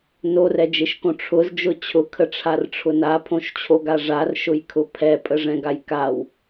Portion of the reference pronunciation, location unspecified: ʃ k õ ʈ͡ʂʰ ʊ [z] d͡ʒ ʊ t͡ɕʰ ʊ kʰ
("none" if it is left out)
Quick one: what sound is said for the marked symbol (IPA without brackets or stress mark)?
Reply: z